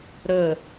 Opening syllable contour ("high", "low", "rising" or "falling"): falling